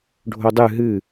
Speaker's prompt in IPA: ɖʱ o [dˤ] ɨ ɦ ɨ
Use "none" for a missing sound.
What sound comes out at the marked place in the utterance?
dˤ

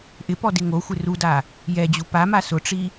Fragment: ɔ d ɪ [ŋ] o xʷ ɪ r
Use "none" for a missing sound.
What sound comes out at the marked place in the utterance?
ŋ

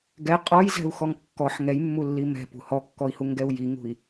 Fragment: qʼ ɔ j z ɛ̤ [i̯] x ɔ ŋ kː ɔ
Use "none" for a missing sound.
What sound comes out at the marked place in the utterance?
u̯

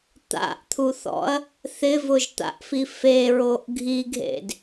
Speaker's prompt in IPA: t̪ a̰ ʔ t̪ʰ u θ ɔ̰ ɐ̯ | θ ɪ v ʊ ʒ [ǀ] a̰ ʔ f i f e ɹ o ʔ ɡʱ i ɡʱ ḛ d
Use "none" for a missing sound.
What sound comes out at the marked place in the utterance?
t̪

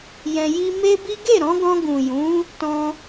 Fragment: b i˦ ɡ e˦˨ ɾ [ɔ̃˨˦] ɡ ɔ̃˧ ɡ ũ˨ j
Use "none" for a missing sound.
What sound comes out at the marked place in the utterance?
ɔ̃˨˦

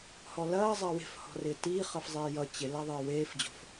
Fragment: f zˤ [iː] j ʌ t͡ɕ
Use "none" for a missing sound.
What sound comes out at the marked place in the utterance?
eː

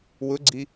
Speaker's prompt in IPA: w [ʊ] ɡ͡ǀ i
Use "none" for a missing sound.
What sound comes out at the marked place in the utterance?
ʊ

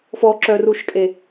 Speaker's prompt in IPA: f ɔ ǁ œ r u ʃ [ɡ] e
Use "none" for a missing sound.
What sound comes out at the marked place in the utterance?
kʼ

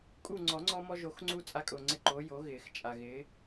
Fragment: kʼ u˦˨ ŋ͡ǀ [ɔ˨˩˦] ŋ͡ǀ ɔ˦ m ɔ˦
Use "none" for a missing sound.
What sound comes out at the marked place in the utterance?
ɔ˨˩˦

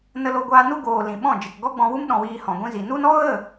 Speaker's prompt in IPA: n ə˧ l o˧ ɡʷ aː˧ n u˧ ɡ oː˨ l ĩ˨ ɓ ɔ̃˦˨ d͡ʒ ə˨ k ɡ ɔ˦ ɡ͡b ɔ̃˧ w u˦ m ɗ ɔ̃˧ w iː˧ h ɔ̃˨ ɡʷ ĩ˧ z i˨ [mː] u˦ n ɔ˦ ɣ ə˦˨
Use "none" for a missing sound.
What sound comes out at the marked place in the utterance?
n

